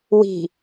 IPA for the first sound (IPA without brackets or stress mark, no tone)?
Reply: w